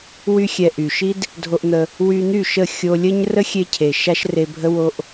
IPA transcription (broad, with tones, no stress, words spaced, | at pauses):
wy˧xʲɛ˨ ʔy˨ʃi˦d | dʱo˧ʔn̪ə˧ | wy˧n̪y˦˨ ʃə˦˨ xʲo˧lʲə˦ɲ rə˦xʲe˧cʰe˨ ʃa˦ʃre˧bʱə˦wo˦ʔ